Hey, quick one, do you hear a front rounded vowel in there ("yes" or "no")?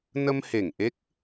no